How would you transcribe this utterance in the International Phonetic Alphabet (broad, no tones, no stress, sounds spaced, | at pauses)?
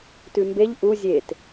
t ʉ m b e ʎ ʔ u zʲ e t